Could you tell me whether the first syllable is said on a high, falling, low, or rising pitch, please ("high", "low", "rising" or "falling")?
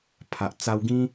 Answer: low